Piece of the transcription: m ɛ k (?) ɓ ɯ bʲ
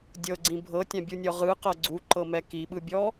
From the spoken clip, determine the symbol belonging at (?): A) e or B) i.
B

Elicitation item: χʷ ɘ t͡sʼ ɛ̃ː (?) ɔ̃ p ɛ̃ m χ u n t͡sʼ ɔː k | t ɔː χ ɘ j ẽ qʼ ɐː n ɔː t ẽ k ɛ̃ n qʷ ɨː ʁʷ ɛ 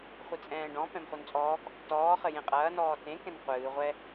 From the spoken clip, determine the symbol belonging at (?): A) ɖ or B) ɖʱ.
A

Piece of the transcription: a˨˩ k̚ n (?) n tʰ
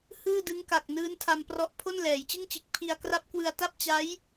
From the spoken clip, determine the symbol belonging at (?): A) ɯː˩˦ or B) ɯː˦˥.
B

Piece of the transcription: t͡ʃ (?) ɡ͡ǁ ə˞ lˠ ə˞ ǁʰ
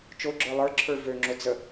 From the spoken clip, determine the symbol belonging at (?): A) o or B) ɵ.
A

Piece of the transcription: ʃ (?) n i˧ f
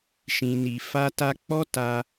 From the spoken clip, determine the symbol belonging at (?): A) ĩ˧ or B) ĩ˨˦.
A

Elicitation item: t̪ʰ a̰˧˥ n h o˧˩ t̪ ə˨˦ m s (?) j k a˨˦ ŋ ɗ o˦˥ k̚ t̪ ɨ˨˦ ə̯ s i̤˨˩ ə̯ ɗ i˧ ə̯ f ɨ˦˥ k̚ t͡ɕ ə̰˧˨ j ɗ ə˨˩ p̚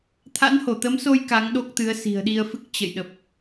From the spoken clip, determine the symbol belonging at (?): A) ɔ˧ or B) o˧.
B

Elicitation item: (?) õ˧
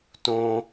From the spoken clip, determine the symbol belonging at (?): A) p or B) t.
B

